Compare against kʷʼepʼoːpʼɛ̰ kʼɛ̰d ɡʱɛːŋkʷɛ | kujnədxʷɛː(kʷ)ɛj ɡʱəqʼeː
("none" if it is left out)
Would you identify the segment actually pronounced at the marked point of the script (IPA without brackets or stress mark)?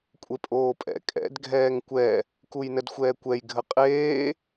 kʷ